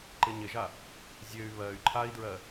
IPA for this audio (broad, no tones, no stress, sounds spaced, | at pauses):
ǃ ɪ ɲ ɪ ʒ a | zʲ ø y̯ β ɜ y̯ ǃʰ a i̯ d ɹ ɜ